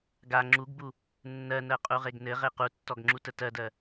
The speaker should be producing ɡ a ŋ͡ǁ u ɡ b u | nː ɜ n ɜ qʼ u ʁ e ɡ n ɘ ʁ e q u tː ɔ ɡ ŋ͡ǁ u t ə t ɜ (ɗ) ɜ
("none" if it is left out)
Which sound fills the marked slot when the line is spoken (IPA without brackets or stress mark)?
d